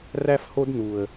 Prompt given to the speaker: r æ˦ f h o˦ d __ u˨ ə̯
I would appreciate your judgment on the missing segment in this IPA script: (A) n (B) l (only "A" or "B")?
A